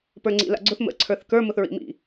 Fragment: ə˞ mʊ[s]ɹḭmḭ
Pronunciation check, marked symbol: incorrect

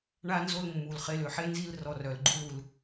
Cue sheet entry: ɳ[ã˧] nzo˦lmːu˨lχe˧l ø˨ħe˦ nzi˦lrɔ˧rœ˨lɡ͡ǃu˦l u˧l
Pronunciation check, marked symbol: incorrect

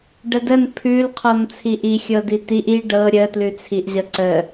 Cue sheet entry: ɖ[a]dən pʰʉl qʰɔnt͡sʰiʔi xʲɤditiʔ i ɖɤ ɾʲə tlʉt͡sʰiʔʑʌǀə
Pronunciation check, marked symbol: incorrect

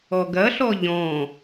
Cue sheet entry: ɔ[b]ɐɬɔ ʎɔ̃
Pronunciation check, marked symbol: incorrect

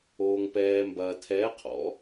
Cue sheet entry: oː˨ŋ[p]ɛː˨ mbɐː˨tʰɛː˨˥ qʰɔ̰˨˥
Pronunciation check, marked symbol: correct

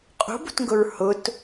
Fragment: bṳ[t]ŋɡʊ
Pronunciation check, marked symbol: correct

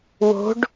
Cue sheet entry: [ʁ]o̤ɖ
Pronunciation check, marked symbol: incorrect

